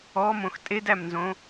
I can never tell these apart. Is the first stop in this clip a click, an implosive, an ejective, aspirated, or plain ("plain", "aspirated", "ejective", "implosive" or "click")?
ejective